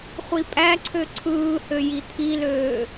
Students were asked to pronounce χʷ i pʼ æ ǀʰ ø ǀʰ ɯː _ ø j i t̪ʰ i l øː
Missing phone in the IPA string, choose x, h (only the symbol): h